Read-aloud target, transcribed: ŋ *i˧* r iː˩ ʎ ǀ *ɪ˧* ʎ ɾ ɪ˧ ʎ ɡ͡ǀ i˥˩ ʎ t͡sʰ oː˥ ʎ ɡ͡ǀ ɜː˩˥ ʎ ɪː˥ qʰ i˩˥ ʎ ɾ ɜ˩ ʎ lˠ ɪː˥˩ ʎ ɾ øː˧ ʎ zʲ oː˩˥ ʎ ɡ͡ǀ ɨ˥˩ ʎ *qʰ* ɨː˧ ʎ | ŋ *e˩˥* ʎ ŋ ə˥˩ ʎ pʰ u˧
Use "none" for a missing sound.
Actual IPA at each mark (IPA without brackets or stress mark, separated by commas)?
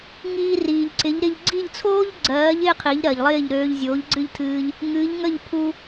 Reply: iː˧, ɪ˩˥, tʰ, ɨ˩˥